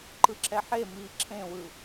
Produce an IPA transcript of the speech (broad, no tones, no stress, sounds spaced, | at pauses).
ǃ ɯ ǁʰ ɛ ħ e m iː ǁʰ ẽ w ɯ